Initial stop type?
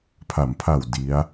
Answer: aspirated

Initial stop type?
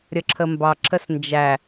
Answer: click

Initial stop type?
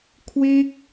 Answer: aspirated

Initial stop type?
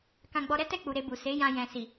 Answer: plain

